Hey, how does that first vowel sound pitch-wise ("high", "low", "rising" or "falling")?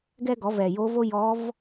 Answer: high